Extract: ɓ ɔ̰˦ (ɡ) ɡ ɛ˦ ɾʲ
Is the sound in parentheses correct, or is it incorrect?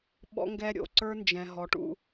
incorrect